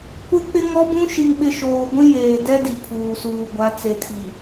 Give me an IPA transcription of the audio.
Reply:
kʷ ɪ˦ k͡p ɪ˦ ŋ ɔ˦ b ũ˦ ʃ i˨ ŋ ɓ ɪ˨ ʃ oː˨ ɡʷ ĩ˦ j eː˨ d ɛ˦ d i˨ pʰ uː˨ s uː˨ ɡʷ a˨˦ t͡s e˨ tʰ i˨

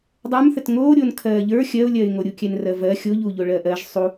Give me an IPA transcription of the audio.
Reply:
dˤ ə˞ m θ ə t ŋ oː ɾʲ oː n kʰ ɜː ʎ ə˞ xʲ ɜ ʊ̯ lʲ ɜ ɪ̯ ŋ o ɾʲ u kʲ ɛ n r ɜ v ɜ xʲ o ʎ uː ʎ o ɭ ɜ ʔ ɜ ʒ sˤ u

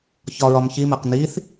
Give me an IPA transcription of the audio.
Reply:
ç ɒ ɹ ɒ m ç i m æ q n i θ

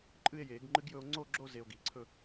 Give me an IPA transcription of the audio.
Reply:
ǃʼ ɨ˥˧ e̯ j eː˨˩˦ ɡ ŋ͡ǃ ɨ˦˥ ɡ j ɵ˧ o̯ ŋ͡ǀ o˥˧ ɡ͡ǁ o˥˧ z e˧ o̯ ɡ iː˩ ǀʰ ɵ˥˧

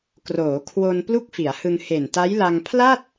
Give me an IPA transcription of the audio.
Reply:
k r oː˩˦ kʰ w o˧ n p l u˥˩ k̚ f i˩˦ a̯ h ɯ˧ ŋ h e˨˩ n t a˦˥ j l a˧ ŋ pʰ l a˥˩ t̚

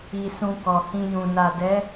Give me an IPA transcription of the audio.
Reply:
i˧ s ũ˧ k ɔ˨ h ĩ˧ j ũ˨ n a˨ d ɛ˨˦

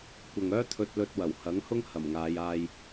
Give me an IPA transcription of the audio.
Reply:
kʷ ɐ˨ ŋ œː˥ t̪ʰ ɵ˧ t̚ l ɵ˧ t̚ w ɐ˨˩ w h ɐ˨˥ ŋ h ʊ˥ ŋ h ɐ˨˩ m ŋ aː˨˧ j aː˧ j

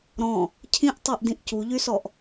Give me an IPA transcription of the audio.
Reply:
ɾ ɔ̃ | cʰ ĩ ʔ tˤ ɤ ʔ d ĩ ʔ c u ʎ y s ɔ ʔ

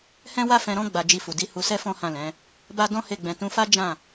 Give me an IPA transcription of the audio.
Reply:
h ɛ̃˦ w a˦ f ɛ̃˧ ɾ ɔ̃˦ ɡ͡b a˧ d͡ʒ i˧ f u˨ d i˨˦ h u˧ s ɛ˦ f ɔ̃˦ h ã˦˨ l ɛ̃˨˦ | b a˦ d ɔ̃˦ h e˦˨ ɡ͡b ɛ̃˧ t ũ˧ f a˦ d͡ʒ ã˦˨

